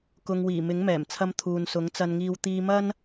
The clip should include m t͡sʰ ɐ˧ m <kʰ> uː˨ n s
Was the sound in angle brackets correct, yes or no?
no